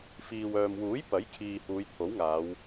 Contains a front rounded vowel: yes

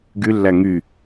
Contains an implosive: no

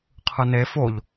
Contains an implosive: no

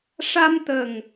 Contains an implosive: no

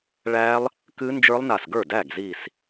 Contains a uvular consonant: no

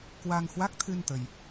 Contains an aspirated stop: yes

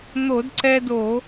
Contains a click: yes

